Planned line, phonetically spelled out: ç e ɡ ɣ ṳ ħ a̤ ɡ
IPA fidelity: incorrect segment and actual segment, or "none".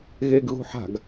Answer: ç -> ɣ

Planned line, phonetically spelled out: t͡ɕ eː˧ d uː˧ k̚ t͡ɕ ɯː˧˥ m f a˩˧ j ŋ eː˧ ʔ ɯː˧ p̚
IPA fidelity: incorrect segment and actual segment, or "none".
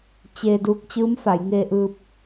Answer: none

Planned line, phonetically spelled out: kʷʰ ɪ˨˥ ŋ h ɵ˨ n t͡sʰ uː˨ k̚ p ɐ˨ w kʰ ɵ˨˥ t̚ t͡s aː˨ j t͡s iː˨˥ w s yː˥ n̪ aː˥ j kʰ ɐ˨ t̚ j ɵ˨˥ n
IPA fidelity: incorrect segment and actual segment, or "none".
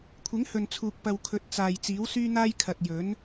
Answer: none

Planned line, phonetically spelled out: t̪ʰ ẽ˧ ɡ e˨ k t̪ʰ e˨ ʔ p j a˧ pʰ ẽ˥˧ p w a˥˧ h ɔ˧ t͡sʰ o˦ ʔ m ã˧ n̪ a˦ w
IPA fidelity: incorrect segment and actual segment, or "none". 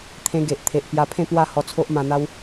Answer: k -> ʔ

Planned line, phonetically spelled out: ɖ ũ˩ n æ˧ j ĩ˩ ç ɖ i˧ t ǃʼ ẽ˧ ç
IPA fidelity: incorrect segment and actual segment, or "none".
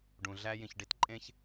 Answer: n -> ɮ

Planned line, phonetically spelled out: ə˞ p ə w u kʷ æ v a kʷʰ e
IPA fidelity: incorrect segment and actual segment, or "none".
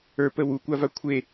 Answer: æ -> a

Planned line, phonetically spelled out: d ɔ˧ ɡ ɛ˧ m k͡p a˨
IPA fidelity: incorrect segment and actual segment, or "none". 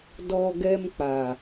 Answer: none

